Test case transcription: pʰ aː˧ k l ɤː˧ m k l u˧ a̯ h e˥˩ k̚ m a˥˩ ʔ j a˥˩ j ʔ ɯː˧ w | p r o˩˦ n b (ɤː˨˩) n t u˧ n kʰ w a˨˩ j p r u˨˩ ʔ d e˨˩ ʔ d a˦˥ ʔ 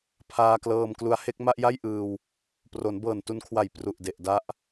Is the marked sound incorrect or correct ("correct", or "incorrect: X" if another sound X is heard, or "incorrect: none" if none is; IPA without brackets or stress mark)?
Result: correct